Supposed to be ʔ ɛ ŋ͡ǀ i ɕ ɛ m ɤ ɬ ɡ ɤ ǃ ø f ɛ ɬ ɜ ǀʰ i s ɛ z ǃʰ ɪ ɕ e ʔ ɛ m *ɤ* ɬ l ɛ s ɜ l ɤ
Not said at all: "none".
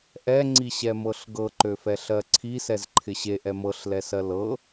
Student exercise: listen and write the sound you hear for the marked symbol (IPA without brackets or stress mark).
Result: ɤ